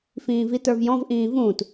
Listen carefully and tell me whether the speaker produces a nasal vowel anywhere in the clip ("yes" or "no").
yes